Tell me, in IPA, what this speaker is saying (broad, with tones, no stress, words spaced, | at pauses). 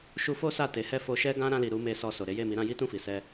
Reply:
ʃu˧fo˦ sa˦˨te˨˦hɛ˦˨ fo˧ʃɛ˦ɡã˦ ɾã˧li˨ ɾu˨˦me˧ sɔ˧so˨ ɾe˨˦je˦˨mi˨˦ɾã˦ ji˦ tũ˦˨fi˨ sɛ˧